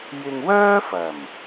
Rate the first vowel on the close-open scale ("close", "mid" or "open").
close